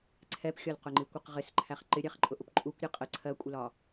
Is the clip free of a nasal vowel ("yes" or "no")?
yes